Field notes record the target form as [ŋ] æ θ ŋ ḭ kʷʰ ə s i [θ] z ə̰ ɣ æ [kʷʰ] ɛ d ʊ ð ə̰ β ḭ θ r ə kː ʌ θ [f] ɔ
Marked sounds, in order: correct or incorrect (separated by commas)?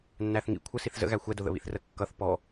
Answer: incorrect, correct, incorrect, incorrect